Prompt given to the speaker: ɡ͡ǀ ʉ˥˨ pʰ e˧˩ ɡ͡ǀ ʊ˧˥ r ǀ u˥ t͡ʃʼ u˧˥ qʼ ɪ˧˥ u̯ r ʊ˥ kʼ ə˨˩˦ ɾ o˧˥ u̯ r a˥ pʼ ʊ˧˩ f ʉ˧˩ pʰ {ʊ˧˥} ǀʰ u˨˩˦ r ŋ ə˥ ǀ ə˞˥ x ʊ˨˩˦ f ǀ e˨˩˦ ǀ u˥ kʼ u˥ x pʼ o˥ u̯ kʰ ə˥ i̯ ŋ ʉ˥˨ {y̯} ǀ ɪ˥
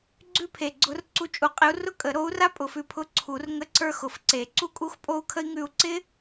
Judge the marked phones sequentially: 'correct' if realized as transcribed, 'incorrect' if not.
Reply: correct, incorrect

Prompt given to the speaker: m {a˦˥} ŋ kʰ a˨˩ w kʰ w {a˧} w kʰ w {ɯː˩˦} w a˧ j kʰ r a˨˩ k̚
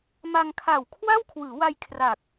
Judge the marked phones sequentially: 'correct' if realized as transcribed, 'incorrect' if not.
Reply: incorrect, incorrect, correct

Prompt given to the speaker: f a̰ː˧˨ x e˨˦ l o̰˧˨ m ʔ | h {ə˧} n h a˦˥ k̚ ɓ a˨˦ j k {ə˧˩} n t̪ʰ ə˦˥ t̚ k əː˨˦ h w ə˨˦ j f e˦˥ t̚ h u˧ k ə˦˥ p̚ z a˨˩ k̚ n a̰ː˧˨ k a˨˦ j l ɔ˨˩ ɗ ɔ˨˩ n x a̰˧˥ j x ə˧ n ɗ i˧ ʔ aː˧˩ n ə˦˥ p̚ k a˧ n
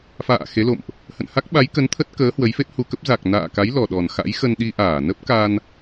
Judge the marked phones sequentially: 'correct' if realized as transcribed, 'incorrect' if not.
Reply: incorrect, incorrect

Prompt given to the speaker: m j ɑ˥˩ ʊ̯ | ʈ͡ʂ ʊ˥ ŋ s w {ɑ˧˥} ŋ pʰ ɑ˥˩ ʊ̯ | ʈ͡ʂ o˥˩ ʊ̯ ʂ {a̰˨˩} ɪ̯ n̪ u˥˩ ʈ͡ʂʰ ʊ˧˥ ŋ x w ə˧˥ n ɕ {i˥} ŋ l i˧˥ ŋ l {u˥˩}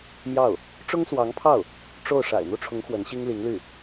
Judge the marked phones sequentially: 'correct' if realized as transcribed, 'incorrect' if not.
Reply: correct, correct, correct, incorrect

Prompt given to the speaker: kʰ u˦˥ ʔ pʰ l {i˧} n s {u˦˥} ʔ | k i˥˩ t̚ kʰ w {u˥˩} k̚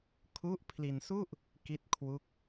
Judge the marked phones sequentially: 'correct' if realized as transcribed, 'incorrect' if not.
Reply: correct, incorrect, correct

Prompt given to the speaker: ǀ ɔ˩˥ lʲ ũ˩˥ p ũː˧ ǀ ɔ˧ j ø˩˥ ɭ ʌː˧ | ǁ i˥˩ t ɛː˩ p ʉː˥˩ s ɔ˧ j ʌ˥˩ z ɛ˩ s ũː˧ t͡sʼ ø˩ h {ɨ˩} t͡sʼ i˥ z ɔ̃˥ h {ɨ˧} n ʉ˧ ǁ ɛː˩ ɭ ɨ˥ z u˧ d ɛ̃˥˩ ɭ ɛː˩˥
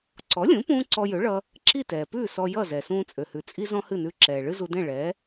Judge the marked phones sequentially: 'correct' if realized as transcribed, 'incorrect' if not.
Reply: incorrect, incorrect

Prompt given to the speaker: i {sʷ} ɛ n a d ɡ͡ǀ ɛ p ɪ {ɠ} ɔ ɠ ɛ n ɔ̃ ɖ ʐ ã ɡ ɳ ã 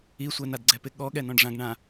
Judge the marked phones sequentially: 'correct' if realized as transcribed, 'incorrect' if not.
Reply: correct, correct

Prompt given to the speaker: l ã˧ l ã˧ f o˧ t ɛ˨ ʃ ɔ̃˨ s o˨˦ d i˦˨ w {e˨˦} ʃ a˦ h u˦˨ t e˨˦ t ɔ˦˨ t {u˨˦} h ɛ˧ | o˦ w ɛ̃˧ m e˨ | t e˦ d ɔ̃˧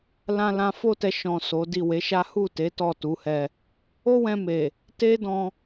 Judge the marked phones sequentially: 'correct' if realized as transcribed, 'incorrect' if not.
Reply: correct, correct

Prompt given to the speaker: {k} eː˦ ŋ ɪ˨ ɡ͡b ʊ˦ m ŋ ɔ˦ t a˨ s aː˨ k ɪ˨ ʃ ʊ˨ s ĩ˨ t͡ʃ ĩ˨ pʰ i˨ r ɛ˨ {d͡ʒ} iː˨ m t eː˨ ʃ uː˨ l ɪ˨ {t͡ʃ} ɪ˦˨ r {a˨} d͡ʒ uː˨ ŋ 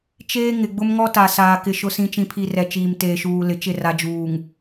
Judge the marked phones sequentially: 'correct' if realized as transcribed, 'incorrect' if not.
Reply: incorrect, incorrect, correct, correct

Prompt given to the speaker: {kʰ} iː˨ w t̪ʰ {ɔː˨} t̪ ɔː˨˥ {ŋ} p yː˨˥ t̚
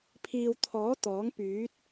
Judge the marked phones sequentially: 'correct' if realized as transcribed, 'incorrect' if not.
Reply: incorrect, incorrect, correct

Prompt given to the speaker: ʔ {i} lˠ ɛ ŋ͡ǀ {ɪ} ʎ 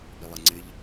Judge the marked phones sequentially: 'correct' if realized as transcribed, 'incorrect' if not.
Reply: correct, correct

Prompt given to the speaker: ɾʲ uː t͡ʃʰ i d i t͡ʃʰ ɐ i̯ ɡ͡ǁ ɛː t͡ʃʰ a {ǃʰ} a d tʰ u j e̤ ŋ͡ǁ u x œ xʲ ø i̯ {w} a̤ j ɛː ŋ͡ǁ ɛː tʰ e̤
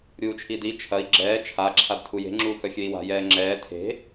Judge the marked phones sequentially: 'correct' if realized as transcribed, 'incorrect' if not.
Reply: incorrect, correct

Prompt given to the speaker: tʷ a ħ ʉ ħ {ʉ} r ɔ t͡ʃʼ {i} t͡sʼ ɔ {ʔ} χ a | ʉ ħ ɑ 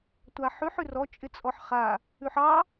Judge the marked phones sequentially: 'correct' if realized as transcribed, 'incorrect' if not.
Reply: correct, incorrect, incorrect

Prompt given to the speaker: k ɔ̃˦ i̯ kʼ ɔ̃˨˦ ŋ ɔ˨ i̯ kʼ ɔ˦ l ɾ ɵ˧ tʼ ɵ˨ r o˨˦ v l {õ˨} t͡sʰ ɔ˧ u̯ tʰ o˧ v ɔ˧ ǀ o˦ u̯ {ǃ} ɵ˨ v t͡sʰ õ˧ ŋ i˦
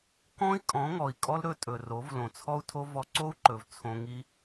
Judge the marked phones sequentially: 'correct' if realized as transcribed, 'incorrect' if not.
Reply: correct, correct

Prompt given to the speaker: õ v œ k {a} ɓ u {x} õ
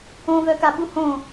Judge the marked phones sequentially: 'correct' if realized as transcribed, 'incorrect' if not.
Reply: correct, incorrect

